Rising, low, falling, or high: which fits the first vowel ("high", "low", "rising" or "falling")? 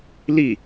falling